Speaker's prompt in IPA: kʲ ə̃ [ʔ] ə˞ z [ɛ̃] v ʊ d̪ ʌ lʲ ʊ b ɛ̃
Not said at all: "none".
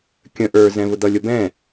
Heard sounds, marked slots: ʔ, ɛ̃

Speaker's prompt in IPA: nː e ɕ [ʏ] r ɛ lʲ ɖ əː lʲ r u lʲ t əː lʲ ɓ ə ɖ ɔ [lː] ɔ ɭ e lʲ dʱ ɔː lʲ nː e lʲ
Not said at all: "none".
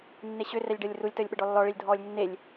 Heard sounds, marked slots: ʏ, lː

